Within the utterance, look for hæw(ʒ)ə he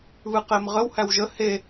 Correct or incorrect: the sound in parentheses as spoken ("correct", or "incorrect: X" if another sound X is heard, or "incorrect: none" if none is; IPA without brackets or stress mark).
correct